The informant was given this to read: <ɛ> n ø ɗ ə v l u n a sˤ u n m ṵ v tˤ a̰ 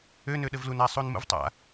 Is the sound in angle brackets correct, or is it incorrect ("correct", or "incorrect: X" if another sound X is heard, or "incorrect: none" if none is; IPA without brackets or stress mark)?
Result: incorrect: ø